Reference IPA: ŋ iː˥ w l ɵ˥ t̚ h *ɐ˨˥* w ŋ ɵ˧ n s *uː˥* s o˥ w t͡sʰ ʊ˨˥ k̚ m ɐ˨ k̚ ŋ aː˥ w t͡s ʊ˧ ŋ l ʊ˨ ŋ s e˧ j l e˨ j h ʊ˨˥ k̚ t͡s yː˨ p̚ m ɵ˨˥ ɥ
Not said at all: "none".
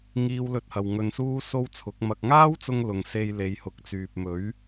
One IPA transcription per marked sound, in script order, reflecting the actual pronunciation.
ɐ˧, uː˥

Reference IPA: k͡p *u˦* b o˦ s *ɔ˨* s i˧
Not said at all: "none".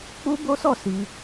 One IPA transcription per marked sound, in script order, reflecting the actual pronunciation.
u˦, ɔ˦˨

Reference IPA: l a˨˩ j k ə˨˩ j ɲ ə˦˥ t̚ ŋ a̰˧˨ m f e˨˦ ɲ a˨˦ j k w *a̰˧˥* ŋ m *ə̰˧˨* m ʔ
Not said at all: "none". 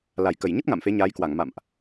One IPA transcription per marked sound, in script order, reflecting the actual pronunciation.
a˧˩, a̰˧˨

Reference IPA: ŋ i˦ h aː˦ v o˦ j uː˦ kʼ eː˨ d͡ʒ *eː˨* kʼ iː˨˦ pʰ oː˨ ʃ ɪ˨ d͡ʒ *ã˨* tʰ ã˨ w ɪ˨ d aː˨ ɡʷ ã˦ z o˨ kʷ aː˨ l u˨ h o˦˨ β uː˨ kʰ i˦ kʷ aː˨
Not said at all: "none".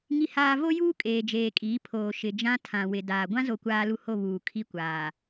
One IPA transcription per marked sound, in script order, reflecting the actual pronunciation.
eː˨, ã˦

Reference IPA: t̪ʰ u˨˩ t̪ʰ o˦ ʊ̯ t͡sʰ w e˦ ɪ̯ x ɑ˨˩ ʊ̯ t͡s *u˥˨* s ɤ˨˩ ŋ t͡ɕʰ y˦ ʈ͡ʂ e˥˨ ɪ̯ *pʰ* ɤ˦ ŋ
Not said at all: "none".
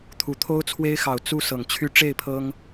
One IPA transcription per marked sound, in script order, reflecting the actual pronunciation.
u˥˨, pʰ

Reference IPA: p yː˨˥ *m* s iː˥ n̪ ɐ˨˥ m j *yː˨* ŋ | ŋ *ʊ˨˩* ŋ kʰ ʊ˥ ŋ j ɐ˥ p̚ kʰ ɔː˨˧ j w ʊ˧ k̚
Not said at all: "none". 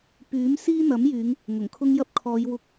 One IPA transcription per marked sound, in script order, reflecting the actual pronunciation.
m, yː˨˧, ʊ˨˩

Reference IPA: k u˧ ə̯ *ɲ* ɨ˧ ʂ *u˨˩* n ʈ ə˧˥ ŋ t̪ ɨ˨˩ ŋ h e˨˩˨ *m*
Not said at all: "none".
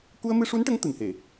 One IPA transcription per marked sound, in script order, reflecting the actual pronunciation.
m, u˧˥, none

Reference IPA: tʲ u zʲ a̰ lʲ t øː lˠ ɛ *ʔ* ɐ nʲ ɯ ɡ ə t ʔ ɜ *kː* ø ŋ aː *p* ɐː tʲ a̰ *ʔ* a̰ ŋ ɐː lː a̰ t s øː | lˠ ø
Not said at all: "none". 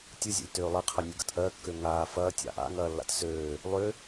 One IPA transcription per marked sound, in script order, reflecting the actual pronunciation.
qʰ, kː, f, ʔ

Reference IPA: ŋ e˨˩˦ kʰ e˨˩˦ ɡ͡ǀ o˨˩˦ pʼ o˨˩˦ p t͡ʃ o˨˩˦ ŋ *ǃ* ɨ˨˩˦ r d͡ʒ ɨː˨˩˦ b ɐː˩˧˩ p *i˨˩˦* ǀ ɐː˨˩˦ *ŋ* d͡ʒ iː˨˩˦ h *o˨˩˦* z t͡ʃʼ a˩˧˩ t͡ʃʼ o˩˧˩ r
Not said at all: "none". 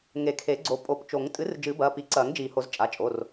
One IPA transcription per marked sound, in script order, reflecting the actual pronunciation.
tʼ, i˨˩˦, ŋ, o˨˩˦

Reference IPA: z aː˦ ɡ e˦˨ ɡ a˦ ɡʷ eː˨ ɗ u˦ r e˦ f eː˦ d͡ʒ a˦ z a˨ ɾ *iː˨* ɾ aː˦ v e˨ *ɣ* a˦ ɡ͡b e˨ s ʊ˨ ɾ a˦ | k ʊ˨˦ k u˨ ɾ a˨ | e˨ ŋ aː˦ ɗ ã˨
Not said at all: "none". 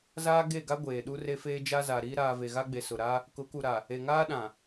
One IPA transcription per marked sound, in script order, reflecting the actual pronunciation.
iː˦, ɣ

